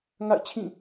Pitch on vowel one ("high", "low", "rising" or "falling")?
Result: falling